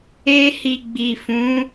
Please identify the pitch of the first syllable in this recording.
high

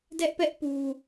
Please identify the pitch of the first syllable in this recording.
high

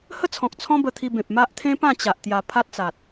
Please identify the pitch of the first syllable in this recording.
high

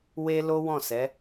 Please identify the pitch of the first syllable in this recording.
high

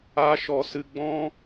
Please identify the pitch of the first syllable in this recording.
high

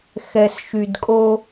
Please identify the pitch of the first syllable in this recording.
low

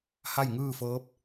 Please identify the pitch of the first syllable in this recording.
falling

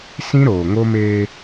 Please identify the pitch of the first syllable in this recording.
high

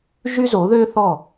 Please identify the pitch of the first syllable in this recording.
high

